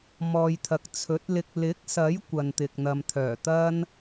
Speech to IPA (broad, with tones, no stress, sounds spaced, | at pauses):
m ɔː˨ j t̪ʰ ɐ˨ k̚ t͡sʰ ɵ˨˥ t̚ l ɪ˧ k̚ l ɪ˨˥ k̚ s ɐ˨˥ j kʷ ɐ˨ n t̪ ɪ˨ k̚ n̪ ɐ˨ m t̪ʰ œː˨˩ t̪ ɐ˥ n